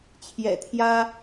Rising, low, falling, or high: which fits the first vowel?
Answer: low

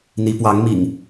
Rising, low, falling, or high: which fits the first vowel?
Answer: rising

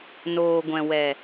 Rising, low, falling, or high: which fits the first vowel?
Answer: low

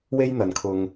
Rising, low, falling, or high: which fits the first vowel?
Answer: high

